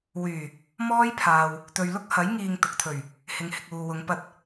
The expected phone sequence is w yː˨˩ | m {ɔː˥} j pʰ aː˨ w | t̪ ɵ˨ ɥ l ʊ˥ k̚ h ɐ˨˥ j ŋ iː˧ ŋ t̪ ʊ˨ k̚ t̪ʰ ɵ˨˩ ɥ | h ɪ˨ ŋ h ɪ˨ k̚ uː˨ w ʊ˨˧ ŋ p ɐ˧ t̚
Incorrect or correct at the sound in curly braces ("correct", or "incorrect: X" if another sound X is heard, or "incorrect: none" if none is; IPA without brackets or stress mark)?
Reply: correct